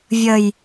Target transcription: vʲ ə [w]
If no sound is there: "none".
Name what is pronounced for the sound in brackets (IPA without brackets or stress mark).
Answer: j